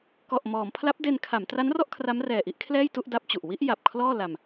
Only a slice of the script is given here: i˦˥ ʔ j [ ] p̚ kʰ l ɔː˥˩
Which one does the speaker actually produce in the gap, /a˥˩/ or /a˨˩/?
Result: a˨˩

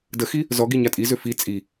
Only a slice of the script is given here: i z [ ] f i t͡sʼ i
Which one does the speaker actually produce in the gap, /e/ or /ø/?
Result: ø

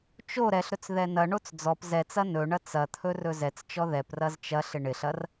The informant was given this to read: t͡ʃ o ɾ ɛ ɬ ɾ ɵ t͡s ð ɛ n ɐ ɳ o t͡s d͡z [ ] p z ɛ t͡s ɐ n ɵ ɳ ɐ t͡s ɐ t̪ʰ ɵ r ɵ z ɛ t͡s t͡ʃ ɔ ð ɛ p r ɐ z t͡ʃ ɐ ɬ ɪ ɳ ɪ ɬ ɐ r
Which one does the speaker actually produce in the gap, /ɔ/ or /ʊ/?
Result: ɔ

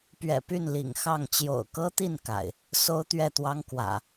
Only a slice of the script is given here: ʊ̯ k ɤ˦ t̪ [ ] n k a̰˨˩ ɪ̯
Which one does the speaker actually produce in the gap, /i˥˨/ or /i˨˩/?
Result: i˥˨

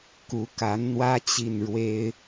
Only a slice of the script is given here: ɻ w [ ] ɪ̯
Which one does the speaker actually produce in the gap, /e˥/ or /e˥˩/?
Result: e˥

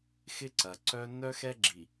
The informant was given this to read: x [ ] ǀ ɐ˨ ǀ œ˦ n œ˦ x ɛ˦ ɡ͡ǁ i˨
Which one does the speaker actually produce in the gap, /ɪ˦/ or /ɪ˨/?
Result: ɪ˦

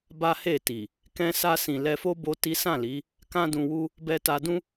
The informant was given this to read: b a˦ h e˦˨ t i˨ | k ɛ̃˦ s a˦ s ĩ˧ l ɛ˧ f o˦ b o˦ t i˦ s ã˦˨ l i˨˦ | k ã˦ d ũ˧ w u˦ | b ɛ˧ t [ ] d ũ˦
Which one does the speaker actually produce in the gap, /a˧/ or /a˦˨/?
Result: a˧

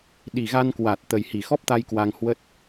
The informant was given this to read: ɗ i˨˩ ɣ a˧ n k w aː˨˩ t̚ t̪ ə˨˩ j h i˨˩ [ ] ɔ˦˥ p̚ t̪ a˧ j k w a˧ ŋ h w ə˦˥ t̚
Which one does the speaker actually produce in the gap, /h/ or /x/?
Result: x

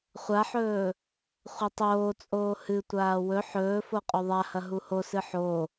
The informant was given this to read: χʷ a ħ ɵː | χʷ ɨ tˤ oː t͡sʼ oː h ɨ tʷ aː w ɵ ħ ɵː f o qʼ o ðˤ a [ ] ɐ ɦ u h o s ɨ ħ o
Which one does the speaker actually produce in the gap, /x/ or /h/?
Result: h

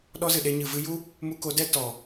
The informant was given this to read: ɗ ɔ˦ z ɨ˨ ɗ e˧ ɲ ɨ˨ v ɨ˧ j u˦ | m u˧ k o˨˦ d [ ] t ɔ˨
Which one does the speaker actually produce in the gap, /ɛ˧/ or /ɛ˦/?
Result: ɛ˦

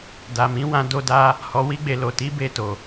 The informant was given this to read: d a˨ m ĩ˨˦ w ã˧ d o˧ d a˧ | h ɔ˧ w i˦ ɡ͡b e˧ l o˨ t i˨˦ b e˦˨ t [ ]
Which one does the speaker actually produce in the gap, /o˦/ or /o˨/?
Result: o˨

